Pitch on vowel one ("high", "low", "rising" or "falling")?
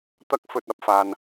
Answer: high